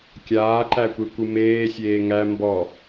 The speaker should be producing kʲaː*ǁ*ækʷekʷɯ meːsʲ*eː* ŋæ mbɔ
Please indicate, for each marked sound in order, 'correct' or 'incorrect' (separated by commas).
incorrect, correct